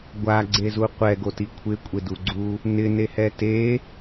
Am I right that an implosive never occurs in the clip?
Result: yes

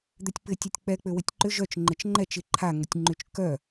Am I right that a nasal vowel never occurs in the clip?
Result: yes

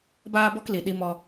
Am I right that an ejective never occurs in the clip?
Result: yes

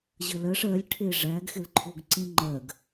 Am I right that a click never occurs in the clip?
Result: no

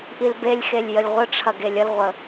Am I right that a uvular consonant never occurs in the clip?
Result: no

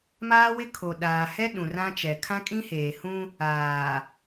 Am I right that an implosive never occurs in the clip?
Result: no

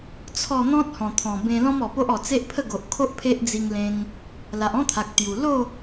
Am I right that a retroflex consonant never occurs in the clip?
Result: yes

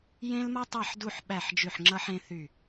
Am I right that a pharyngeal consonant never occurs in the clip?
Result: no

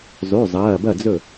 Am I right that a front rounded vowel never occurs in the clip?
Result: no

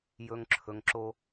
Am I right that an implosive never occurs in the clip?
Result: yes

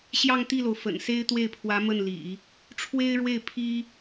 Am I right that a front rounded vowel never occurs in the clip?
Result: yes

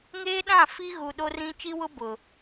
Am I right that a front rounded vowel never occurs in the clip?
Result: yes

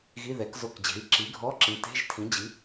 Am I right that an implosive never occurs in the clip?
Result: yes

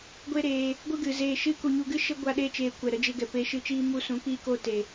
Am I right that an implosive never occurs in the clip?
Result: no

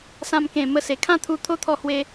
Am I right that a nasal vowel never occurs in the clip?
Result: no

